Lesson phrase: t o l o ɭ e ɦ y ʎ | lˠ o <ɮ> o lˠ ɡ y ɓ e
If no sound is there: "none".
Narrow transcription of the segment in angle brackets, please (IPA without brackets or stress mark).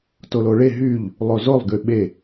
z